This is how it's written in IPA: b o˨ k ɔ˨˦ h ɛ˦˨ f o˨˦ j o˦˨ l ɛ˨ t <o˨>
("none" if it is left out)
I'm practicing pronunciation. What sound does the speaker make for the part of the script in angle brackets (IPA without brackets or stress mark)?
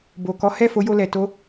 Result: o˧